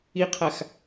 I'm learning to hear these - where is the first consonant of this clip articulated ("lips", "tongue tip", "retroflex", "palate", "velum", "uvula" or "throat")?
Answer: uvula